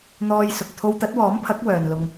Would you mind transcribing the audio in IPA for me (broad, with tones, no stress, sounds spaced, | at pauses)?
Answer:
n̪ ɔː˧ j s ʊ˨ k̚ t̪ʰ o˧ w t̪ ɐ˨˥ t̚ w ɔː˨˥ m pʰ ɐ˨˥ k̚ w œː˨ n l ʊ˧ ŋ